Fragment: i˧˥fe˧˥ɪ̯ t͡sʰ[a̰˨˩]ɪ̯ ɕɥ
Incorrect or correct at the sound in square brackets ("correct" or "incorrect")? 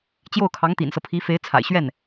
correct